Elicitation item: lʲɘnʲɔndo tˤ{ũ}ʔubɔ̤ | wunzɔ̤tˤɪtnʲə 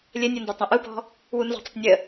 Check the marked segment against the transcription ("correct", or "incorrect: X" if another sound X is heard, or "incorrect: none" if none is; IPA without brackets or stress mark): correct